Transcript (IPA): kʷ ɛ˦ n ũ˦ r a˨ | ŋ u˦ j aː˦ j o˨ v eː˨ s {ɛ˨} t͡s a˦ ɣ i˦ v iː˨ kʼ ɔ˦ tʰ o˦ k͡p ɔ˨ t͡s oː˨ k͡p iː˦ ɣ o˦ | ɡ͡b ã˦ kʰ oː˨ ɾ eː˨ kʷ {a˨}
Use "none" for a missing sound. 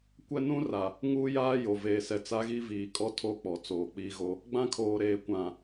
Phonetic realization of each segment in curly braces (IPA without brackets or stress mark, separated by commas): ɛ˨, ã˨